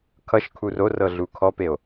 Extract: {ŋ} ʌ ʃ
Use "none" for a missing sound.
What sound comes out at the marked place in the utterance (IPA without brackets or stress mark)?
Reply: kʰ